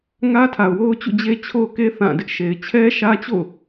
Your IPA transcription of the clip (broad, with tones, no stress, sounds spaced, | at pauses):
ŋ ä˦ tʰ a˨ ʊ̯ w o˦ ʊ̯ t͡ɕ ṵ˦˨ d͡ʑ e˦ t͡ɕʰ o˦ ʊ̯ k e˦ θ ã˦˨ d ɪ˦ ʔ ʃ e˨ ɪ̯ t͡ɕʰ ɛ˦ ʃ ä˦ t͡ɕ o̰˦˨ ʊ̯